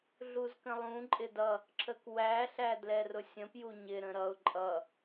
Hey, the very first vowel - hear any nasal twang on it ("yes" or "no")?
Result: no